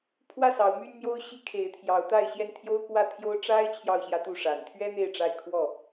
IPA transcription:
pʰwä˥˨sɑ˨˦ʊ̯ my˦nmjo˦ʊ̯ɕi˦ kʰe˨˦ɪ̯t̪ʰjɑ˨˦ʊ̯t̪a˥˨ɪ̯ ɕjɛ˥˨nt̪ʰjo˦ʊ̯kwä˥˨t̪ʰjo˦ʊ̯ ʈ͡ʂa˦ɪ̯ t͡ɕʰjɑ˥˨ʊ̯ɕjä˦t̪u˥˨ ʂa˨˩nt̪ʰɥɛ˦ n̪e˥˨ɪ̯ʈ͡ʂa˥˨ɪ̯ kʰwɔ˥˨

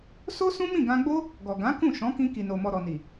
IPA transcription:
so˦sũ˦mĩ˦˨ ɡã˧ɡ͡bo˦ | ɡɔ˨ɡã˨˦ kũ˦˨ ʃɔ̃˨˦kĩ˧ ki˨no˨mɔ˨ ɾɔ˨ni˨

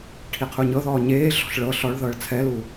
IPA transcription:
ʈʰiqʰuɲɤðɔː ɲeːɮɔ̤ɬ ɭɤ ɬɔɭðɤːɭ t͡sʰɛlu

